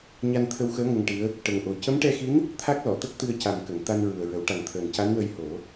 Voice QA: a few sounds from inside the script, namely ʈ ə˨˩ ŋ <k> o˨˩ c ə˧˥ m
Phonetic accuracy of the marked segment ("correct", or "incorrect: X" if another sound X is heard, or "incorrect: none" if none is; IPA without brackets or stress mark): incorrect: ʔ